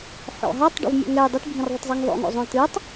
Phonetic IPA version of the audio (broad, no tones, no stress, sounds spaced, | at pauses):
ħ ɔ̰ ɦ a tˤ ɖ ɔ̰ v mʲ ɔ̰ ŋ ɛ j dˤ ɨ t bʱ ĩ r ðˤ ɨ tˤ zˤ ɛ ŋ ðˤ o̰ ŋ o̰ zˤ õ j t ɨ tˤ